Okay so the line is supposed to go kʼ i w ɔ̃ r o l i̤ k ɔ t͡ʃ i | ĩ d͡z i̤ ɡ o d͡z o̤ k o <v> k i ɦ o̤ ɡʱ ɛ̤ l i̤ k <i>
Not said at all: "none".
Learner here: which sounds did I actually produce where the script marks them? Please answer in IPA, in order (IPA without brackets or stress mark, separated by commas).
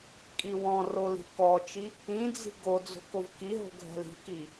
v, i